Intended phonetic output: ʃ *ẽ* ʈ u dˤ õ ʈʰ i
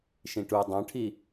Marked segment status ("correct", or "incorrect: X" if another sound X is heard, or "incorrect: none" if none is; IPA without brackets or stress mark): incorrect: ĩ